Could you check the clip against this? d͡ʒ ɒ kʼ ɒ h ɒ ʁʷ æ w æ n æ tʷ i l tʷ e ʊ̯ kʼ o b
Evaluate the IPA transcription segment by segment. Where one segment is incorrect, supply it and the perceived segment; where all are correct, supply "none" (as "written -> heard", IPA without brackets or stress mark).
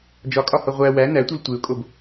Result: none